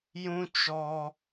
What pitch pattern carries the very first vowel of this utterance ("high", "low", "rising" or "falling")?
high